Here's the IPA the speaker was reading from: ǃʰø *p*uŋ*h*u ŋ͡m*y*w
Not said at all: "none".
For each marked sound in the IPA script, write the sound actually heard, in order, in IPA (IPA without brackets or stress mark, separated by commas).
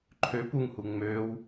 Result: p, h, ø